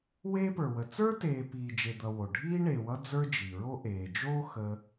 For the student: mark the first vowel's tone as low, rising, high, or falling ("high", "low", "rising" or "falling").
high